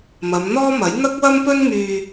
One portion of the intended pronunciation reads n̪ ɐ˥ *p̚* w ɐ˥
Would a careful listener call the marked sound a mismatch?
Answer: yes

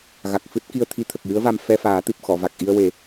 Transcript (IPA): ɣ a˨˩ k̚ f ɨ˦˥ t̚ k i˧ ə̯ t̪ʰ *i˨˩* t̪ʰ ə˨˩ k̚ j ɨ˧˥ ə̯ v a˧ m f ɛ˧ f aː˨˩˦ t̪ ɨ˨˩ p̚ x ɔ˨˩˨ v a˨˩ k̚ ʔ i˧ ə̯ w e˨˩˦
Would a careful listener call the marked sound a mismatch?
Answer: yes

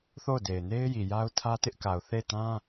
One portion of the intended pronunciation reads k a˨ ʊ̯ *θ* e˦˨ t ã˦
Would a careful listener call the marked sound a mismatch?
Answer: no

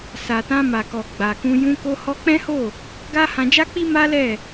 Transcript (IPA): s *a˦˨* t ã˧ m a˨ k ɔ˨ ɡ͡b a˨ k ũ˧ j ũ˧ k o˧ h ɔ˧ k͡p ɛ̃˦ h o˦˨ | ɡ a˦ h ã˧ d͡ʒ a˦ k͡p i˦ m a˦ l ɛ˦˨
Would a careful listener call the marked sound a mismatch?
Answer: yes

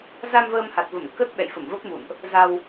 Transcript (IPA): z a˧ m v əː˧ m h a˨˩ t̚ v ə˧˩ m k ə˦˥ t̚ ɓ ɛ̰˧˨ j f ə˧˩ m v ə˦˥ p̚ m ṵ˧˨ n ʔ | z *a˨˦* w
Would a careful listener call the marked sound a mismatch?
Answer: yes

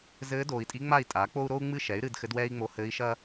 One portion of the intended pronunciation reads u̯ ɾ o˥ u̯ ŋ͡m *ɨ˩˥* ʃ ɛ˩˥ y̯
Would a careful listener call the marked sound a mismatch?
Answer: yes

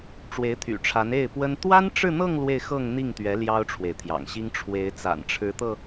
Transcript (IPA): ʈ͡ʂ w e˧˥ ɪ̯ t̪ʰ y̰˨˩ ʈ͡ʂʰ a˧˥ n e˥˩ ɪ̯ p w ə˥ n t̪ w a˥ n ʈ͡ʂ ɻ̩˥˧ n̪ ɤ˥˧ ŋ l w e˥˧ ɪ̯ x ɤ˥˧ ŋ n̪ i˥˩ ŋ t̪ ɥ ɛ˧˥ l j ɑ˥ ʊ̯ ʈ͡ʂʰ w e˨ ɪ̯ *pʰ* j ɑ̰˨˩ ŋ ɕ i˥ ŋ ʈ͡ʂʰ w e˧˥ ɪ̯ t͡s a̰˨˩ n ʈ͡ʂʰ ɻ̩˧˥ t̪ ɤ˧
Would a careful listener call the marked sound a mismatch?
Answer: yes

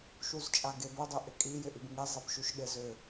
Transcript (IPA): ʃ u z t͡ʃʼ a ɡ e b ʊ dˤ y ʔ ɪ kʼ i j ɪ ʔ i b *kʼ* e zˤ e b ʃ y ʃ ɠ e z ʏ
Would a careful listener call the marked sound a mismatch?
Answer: yes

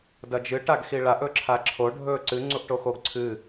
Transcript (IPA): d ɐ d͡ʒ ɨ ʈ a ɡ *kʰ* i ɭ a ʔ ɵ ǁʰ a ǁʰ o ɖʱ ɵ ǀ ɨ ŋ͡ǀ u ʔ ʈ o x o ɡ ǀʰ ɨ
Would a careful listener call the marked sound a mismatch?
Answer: yes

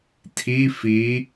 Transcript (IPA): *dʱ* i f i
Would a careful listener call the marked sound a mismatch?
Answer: yes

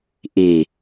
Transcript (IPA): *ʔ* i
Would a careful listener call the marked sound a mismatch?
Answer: no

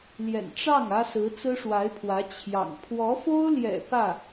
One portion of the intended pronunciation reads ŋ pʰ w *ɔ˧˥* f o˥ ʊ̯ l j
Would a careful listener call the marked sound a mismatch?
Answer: no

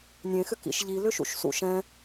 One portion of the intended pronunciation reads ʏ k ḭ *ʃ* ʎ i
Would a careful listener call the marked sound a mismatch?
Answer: no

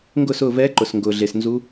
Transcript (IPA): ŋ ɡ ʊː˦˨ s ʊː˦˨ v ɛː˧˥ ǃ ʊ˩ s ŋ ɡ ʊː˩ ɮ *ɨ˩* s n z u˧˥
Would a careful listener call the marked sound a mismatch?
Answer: yes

